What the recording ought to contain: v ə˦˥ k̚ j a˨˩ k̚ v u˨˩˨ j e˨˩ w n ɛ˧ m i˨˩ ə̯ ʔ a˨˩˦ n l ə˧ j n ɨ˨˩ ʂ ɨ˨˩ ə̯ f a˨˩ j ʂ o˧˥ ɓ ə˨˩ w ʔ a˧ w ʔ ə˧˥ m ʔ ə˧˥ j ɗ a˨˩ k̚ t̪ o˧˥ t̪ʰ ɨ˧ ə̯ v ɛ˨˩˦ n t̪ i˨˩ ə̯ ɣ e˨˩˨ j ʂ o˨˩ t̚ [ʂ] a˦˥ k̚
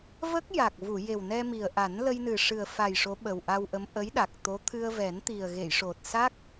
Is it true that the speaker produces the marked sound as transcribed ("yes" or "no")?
no